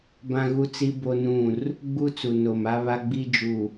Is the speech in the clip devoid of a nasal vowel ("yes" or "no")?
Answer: no